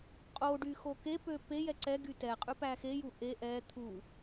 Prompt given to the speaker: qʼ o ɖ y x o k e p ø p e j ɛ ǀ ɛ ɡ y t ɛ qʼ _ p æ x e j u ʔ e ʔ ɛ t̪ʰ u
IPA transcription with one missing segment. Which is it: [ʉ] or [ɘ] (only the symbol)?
ʉ